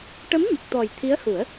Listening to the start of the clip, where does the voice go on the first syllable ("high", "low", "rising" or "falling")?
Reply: rising